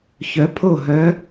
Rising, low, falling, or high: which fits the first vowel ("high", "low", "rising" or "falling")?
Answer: rising